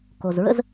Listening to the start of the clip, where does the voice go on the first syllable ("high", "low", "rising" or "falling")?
low